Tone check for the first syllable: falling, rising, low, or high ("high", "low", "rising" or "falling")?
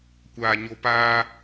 low